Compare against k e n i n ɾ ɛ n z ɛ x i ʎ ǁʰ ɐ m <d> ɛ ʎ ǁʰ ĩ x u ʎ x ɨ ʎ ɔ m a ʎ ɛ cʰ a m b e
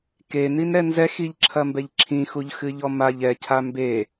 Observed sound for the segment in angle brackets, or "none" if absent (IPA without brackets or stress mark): b